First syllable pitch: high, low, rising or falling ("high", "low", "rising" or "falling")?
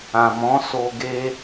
low